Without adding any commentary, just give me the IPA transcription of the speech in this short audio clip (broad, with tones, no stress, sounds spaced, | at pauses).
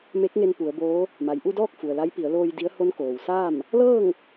m e˧˥ k̚ ŋ e˧ n p u˩˧ ə̯ b oː˧˥ | m a˩ j ʔ u˥˨ d ɔː˥˨ k̚ f u˩ ə̯ l a˧˥ j p i˩˧ ə̯ l oː˧ j d i˧˥ ə̯ h o˧˥ n k oː˩ w s aː˥˨ m | l ɤː˥˨ ŋ